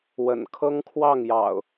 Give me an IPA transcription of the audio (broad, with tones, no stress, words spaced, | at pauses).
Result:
wə̰˨˩n kʰɤ˦ŋkʰwɑ˥˨ŋjɑ̰˨˩ʊ̯